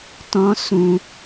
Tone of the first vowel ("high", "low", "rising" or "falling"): high